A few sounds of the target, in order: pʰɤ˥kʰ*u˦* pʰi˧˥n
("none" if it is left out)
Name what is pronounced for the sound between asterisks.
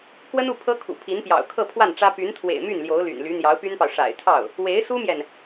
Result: ṵ˨˩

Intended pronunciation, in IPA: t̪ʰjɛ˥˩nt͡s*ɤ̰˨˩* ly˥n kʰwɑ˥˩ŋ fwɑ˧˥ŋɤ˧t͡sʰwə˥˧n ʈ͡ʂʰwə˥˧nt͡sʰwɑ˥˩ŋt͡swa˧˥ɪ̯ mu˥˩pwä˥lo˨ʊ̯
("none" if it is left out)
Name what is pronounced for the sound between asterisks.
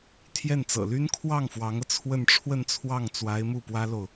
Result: ɤ̰˨˩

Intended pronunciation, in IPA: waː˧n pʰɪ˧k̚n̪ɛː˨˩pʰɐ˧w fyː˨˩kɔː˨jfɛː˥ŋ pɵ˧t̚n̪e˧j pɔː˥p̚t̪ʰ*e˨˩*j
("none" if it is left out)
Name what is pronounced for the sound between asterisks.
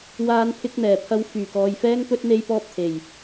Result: e˨˩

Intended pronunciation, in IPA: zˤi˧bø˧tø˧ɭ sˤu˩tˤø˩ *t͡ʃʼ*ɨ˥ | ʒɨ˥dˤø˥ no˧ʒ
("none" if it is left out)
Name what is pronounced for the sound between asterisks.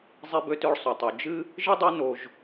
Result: d͡ʒ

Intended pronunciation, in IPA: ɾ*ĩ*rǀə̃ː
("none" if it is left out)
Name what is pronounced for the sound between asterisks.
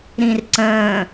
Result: ĩ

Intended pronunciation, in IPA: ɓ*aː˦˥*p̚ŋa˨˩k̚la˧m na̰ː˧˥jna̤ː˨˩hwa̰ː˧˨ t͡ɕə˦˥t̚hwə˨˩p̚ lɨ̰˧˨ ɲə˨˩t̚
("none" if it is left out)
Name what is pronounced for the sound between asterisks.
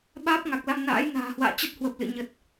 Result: aː˦˥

